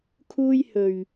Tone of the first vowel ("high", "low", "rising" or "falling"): high